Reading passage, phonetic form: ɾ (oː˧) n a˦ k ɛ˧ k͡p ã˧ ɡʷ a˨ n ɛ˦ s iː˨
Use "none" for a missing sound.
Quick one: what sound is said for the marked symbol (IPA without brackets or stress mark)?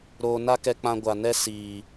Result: oː˧